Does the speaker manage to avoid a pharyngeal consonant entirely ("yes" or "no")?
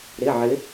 no